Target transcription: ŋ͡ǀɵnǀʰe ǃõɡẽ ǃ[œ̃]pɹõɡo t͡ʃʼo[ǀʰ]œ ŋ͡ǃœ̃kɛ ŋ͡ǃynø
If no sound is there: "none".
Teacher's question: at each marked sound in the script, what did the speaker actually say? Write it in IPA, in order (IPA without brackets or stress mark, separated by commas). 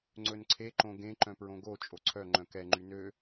œ̃, ǀʰ